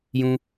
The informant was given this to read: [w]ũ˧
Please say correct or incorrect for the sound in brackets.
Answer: incorrect